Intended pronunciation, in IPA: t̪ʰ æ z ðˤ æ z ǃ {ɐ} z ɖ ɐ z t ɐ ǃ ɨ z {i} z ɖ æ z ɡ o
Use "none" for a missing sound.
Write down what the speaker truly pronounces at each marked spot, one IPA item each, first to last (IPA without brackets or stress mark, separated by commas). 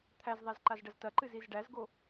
a, i